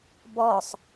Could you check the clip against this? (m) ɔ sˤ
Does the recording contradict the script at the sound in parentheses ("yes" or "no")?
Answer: yes